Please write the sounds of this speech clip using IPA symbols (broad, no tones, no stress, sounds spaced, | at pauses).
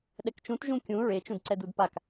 ɗ ɛ k t͡ʃ ũ t ʒ ũ kʲ ũ ɹ e t͡ʃ ũ d ǀ ɛ d u d p a k